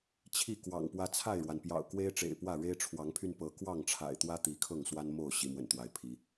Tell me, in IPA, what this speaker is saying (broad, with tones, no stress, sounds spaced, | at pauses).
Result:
t͡ɕʰ i˥˨ k w ɑ̰˨˩ ŋ p w ä˦ t͡sʰ a˥˨ ɪ̯ ɻ w a˩ n p j ɑ̰˨˩ ʊ̯ k w e˦ ɪ̯ ʈ͡ʂ ḛ˨˩ ɪ̯ p w ä˥˨ ɻ e˦ ɪ̯ ʈ͡ʂʰ w ɑ˨˦ ŋ pʰ y˧ n p ɤ˨˦ k w ɑ˥˨ ŋ ʈ͡ʂʰ a̰˨˩ ɪ̯ t̪ w ä˦ t̪ i˨˦ kʰ ɤ˥˨ ŋ s w a˦ n m o˥˨ ʊ̯ ɕ i˨˦ m w ə̰˨˩ n t̪ w a˨˦ ɪ̯ pʰ i˨˦